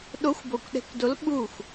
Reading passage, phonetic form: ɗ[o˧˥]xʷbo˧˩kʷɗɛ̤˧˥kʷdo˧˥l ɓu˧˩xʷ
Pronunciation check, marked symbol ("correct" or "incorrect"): correct